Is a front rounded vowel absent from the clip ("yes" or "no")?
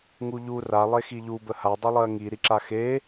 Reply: yes